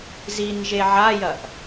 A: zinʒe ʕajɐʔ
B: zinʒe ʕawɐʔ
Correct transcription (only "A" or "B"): A